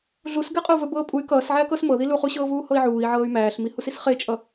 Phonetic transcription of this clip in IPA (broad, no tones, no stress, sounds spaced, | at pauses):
ɮ u s ɡ ɛ qʼ ɵ u̯ v ɵ b ɤː pʼ u y̯ k ʌː s ʕ æ k ɤ s m ɤ ð i l u χ u ɕ ɤː v uː h ɤ i̯ ʕ uː i̯ ʕ ɤː y̯ m æː ɬ m i h u s i s χ e t͡ʃʼ ʌ